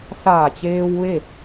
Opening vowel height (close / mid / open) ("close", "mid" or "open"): open